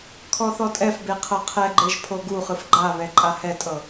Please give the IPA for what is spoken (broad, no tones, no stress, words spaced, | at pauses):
kʰɔθɔtʼɛfbe qʰɤqʰɛɡ͡ǃeʒ pʰoɡuχɯf ɡ͡ǃaβɛ ǃʼahɛtʼɤ